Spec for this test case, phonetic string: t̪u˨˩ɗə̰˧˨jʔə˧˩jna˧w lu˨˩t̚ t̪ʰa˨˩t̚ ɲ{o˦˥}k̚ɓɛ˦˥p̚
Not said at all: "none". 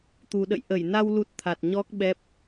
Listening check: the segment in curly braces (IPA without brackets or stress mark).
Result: ɔ˦˥